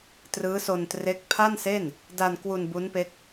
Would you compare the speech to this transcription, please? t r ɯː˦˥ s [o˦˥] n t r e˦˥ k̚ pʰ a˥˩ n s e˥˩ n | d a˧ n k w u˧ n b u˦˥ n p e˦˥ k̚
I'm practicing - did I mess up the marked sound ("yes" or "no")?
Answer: yes